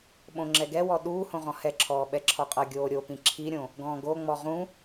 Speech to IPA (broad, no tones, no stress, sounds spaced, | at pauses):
ɓ õ ŋ͡ǁ ɛ ɡ ɛ w ɔ ɗ uː h õ ʁ ɔ̃ h ɛ ǁʰ ɔː ɓ ɛ ǁʰ ɔ qʼ ʌ ɡʲ oː ɾʲ o p ĩ ǁʰ i ɾʲ õ | ɡ ɔ̃ː ɡ o ŋ͡m ɔ ʁ ũ